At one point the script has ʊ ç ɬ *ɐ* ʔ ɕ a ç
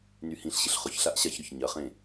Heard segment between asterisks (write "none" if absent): a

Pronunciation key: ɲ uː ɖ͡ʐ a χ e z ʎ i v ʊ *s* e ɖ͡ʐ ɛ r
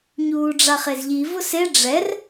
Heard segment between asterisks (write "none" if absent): s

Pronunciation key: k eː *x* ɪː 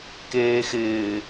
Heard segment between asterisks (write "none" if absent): x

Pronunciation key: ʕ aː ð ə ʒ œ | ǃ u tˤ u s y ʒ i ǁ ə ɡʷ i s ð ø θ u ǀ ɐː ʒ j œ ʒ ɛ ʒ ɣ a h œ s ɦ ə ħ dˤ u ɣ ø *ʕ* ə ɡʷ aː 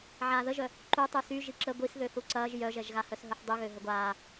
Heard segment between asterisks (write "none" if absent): ɦ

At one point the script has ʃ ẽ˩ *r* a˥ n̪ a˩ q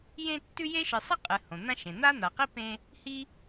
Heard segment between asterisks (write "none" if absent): n̪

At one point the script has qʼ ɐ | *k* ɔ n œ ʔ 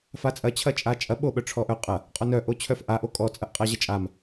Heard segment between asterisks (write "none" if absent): qʼ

